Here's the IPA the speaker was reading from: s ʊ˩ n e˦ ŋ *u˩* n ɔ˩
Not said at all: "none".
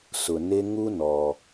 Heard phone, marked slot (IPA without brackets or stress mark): u˥